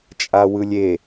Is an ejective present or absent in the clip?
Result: present